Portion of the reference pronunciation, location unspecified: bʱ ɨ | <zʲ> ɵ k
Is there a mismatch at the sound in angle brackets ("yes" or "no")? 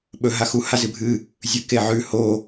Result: no